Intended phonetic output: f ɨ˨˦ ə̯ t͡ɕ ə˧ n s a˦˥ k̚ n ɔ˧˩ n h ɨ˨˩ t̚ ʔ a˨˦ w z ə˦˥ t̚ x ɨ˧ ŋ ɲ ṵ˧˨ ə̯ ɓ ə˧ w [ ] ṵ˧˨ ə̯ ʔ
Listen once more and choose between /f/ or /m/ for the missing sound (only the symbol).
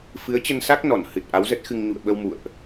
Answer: m